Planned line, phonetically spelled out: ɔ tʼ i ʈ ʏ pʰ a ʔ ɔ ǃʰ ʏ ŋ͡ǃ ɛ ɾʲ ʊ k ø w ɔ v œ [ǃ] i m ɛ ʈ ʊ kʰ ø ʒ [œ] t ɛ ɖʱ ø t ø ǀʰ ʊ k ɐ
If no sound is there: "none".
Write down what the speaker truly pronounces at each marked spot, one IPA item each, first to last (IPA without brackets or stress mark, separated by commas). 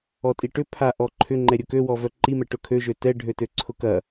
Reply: ǃ, ø